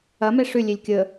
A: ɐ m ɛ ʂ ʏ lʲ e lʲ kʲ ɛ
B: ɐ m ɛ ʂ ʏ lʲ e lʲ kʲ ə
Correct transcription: B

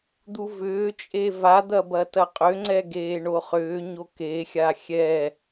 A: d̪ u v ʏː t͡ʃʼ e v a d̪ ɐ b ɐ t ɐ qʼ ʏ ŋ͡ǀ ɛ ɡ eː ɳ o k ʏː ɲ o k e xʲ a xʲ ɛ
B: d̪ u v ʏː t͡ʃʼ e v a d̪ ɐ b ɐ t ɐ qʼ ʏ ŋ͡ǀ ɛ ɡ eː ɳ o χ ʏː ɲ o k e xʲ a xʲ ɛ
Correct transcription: B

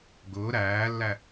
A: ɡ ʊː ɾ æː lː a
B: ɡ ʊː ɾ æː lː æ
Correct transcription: B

